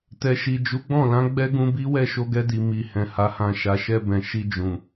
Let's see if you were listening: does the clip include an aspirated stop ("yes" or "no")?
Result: no